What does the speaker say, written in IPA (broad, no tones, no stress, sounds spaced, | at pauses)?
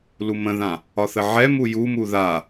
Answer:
l u m ə̃ ð ã | ɒ θ ə ʕ ɛ m u j u m u ð a